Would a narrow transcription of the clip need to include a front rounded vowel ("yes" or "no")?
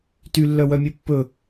yes